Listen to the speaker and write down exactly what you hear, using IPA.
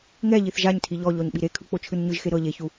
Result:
ŋ ɛ ʎ i θ ʒ a ɲ tʰ i ʎ ɔ ʎ ɔ ɲ ɓ i ɾ e kʰ ɯ k͡p o t͡ʃʰ ɯ n ɲ ɯ ʒ x e ɾ ɤ ʎ e ç u

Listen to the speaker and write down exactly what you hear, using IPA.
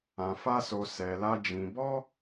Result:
ã˧ f a˦ s o˧ s ɛ˧ l a˦ d͡ʒ ĩ˧ b ɔ˦

